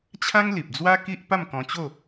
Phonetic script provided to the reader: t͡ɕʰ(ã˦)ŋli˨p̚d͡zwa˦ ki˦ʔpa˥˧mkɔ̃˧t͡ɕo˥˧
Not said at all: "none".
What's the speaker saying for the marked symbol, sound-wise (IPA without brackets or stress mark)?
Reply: ã˦